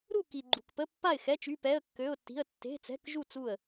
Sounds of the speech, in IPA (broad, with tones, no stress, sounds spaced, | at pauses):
ɾ u˥˨ k i˨ ɡ͡ǃ ṳ˨ k p ə˧˥˧ pː a˥˨ ɪ̯ x ɛ˧˥˧ t͡ʃ y˧˥˧ p ɛ˧˥˧ ə̯ kː ø˧˥˧ ʊ̯ tː i̤˧˥˧ ə̯ tː e̤˧˥˧ t͡s ɛ̤˧˥˧ k ʒ u˥˨ t͡s u˥˨ ə̯